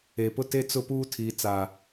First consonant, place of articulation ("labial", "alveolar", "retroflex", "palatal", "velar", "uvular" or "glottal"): labial